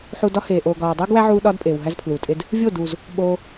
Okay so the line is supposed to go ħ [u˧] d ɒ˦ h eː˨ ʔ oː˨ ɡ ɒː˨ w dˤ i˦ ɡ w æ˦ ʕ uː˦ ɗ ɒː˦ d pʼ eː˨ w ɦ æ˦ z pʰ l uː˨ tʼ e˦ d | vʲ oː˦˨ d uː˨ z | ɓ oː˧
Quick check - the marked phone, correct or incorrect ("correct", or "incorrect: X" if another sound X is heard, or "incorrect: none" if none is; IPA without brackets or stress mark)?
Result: correct